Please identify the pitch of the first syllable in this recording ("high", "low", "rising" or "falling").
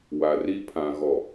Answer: low